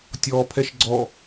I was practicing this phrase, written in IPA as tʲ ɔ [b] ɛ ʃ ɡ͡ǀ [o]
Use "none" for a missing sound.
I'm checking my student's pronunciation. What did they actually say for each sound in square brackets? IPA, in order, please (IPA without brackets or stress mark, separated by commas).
pʰ, ɔ